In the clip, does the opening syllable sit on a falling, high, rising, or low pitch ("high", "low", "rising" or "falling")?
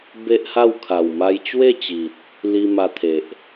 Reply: high